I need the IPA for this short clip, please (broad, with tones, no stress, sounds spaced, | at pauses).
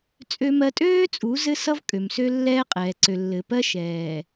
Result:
t͡sʼ ø˦ m ɜ˦ tʼ øː˦ t͡sʼ u˨˦ z ɘ˦ s ʌ˦ v kʼ ø˨ m s ø˦ lː ɛː˦ qʼ ɛː˨ ǀ ø˨ lː ɘ˨ p ɜ˦ ʃ ɛː˨